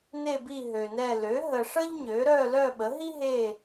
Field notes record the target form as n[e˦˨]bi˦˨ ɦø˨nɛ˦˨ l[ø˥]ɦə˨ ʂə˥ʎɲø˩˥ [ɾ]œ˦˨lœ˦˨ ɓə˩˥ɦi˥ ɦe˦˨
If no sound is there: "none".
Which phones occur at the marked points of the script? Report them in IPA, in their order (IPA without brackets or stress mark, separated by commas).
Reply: e˦˨, ø˩˥, ɾ